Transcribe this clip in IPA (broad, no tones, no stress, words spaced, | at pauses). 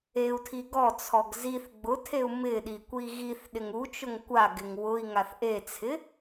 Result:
eu̯tʰi ɡɔt͡sʰɔɡ ziθ ɡ͡bʊtʰeu̯ mɪɗi kʷiɣiθɗɪŋ u t͡ʃʊŋkʷaɡɪŋ wʊi̯ŋaθ ʔet͡sʰɪ